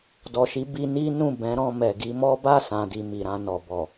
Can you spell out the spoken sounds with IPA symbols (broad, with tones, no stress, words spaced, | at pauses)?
dɔ˨ʃi˨˦ bi˧ni˦nũ˦˨ bɛ̃˨˦ɾɔ̃˧ mɛ˨ɡi˧mɔ˦ ba˦˨sã˨di˨ mi˨ɾã˧nɔ˨ bɔ˨